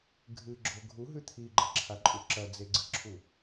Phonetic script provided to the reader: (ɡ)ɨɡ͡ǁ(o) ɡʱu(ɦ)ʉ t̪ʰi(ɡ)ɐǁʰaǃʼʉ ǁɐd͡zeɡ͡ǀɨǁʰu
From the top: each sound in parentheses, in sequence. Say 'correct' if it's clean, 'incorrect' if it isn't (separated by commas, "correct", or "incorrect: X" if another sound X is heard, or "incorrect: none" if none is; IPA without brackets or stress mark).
incorrect: ɡʱ, correct, correct, incorrect: ɡ͡ǃ